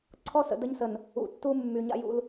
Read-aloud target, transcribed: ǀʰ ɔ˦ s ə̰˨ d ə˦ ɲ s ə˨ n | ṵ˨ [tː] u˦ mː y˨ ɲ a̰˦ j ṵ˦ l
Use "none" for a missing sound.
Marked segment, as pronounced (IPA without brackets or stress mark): tː